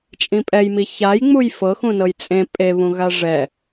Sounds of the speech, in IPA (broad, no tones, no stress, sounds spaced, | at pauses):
t͡ʃʼ ĩ pʼ ɛ j m i ç a j ŋ͡m u j f ɤ x ũ n ɤ j t͡sʼ ẽ pʼ e β ũ ɣ a ʐ ɛ